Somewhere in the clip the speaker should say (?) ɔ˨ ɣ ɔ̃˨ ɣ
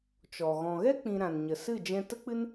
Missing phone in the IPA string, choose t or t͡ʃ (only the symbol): t͡ʃ